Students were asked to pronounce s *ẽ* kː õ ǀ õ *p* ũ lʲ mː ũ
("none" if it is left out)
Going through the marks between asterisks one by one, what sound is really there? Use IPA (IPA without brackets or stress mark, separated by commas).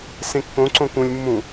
ẽ, k